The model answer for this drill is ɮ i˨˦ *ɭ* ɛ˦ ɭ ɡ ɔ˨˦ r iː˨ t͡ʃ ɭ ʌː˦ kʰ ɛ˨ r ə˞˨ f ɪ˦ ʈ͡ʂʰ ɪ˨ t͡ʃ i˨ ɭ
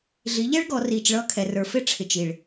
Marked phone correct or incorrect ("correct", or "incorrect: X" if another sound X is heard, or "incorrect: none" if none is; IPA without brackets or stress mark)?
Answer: incorrect: ʎ